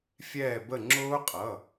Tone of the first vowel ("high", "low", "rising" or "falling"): falling